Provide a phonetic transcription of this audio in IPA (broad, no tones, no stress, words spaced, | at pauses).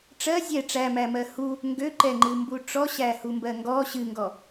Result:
ʈ͡ʂɜ zʲɛ ʈ͡ʂæmæmɜ hu | ŋɡøǃɛŋ͡ǃɨmbu ʈ͡ʂɔɕæhumbɜ ŋɡɔ ɕɨŋɡɔ